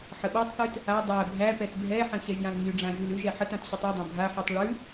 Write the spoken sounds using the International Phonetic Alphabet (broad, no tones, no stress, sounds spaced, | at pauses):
ħ ə ɓ a tˤ θ ʉ t | a dˤ æ bʱ æ p ɛ t bʱ ɛ ħ ə̃ ɕ ɛ ʒ j ã l ɲ y ɖ͡ʐ ã ʒ ʉ l ʉ ʒ ɛ ħ ə t ã t ɕ ʉ tˤ e dˤ ã bʱ a ħ y tˤ ɭ ʉ